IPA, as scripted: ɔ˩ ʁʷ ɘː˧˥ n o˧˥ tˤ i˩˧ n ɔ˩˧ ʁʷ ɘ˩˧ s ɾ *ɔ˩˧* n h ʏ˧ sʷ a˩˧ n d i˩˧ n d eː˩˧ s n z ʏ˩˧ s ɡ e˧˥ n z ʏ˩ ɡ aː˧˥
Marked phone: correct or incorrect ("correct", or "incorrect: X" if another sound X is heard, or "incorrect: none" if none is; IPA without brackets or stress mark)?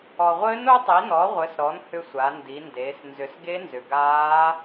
correct